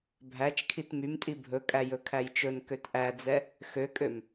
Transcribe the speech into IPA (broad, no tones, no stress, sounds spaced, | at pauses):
bʱ æ t͡ʃ kʰ i t m y m tʼ i bʱ ɵ kʼ æ j ɵ kʰ æ j t͡ʃ ɵ n k ø t ʔ æ d͡z ɛ | x ø kʼ ø m